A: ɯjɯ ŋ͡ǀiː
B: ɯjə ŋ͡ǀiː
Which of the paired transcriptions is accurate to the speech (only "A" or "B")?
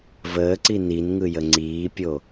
B